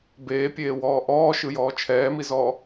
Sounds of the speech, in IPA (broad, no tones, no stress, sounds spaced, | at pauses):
b eː pʲ eː w ɔː ʔ ɔː ʃ ɯ j ɔː t͡ʃʰ ɛː m i z ɔː